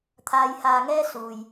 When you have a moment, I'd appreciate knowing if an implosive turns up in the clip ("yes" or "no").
no